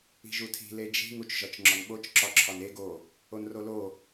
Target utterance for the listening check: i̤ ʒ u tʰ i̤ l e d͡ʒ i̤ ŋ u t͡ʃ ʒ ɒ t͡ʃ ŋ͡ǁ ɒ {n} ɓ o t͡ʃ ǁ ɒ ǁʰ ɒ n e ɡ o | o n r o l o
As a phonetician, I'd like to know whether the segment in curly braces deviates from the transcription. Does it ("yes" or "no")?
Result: no